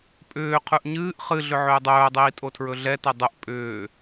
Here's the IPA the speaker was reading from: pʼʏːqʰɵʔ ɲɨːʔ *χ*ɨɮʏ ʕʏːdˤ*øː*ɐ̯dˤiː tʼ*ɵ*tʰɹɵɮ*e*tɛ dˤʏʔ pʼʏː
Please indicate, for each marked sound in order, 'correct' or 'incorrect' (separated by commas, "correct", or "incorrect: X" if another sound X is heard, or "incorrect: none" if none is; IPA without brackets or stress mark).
correct, incorrect: ɵː, incorrect: o, incorrect: ɛ